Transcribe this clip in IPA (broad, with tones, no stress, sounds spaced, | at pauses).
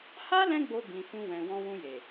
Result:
h a˦ l ɛ̃˦ ɡ͡b o˧ b ĩ˨ f ũ˧ w ɛ̃˨ w ɔ̃˧ w ũ˧ j e˨